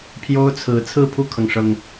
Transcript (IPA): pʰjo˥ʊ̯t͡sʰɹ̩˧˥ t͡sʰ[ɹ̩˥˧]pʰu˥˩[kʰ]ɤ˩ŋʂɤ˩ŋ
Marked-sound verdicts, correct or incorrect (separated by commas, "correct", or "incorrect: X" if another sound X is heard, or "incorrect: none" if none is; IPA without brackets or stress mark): correct, correct